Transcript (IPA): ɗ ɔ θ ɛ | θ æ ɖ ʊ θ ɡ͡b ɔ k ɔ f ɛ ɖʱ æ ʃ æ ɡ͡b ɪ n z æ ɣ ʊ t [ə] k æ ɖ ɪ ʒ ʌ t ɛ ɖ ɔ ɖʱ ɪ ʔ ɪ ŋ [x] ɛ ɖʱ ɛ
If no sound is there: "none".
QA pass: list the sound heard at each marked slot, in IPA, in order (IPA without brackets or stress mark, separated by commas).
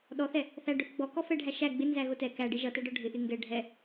ɛ, ɡ